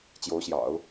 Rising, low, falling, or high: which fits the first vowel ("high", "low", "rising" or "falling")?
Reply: rising